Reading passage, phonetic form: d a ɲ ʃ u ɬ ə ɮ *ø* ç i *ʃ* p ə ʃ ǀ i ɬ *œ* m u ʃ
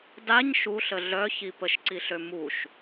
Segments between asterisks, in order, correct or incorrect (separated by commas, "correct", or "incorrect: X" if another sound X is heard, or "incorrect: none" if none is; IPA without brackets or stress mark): incorrect: œ, incorrect: none, incorrect: ø